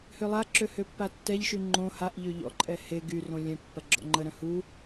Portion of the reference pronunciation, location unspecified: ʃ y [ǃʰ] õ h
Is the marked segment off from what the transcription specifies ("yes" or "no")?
yes